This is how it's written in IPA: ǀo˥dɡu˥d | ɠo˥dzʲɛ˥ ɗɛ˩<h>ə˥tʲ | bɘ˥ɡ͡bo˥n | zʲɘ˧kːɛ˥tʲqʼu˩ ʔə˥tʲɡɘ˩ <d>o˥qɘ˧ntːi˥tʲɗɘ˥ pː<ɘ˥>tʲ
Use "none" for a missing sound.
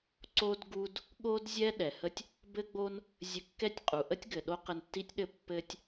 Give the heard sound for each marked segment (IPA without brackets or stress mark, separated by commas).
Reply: h, ɗ, ɘ˥